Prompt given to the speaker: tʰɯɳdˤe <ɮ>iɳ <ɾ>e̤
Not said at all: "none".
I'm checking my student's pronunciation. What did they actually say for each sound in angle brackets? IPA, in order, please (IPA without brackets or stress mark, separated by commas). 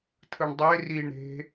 r, ɾ